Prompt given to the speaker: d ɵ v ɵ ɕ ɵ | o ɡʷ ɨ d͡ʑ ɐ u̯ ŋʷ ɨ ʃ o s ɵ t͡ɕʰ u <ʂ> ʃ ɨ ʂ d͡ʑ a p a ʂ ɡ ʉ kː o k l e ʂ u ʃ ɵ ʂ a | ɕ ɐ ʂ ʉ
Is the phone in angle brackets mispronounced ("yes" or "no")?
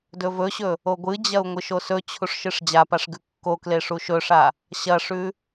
no